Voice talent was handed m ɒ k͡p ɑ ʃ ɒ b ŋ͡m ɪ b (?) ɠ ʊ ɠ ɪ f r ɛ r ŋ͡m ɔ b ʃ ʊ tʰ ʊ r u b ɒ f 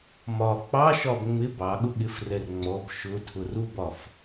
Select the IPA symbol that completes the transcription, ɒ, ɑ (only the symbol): ɑ